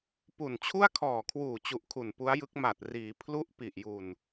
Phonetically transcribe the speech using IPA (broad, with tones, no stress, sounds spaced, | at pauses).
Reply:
p u˨˩ n t͡ɕʰ u˥˩ a̯ kʰ ɔː˨˩ kʰ w uː˨˩ t͡ɕ u˨˩ ʔ kʰ u˨˩ n p u˦˥ a̯ j ɯ˦˥ k̚ m a˨˩ t̚ r iː˩˦ pʰ l u˦˥ ʔ p i˨˩ ʔ j u˨˩ n